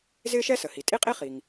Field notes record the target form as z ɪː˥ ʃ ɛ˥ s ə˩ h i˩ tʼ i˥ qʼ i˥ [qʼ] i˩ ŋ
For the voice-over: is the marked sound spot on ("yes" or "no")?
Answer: no